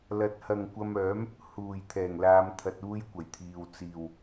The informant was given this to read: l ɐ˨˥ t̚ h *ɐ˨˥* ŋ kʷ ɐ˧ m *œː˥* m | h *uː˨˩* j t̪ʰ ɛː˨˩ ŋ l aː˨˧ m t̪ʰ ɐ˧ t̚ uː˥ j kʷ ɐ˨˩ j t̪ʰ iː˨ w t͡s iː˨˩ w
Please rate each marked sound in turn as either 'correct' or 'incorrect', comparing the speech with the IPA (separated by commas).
incorrect, incorrect, correct